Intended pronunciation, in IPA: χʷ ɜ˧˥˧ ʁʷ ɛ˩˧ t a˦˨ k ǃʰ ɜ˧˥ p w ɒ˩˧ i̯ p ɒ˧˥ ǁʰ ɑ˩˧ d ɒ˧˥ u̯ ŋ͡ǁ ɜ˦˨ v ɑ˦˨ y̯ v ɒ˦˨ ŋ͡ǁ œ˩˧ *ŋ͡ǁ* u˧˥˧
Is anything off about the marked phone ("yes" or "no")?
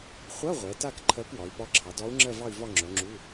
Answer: no